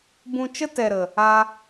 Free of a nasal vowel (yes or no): no